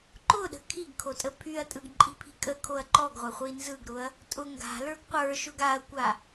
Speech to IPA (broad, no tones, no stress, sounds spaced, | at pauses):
ǃ ʊ ɗ ə̤ kʰ i ɡ kʰ o tʼ ə pʰ y ɐ̯ tʼ ɯ ɡ ǃʼ i̤ pʰ i̤ kʼ ə kʰ o ɐ̯ ǃ ɔ ɡ ʁʷ a χʷ i n z ɯ ɡ ɾ ʊ ɐ̯ | tʼ ʊ ŋ ɡ a̤ l ə˞ ɡ qʷ ə˞ ʃ ʊ ɡ a ɐ̯ kʷ a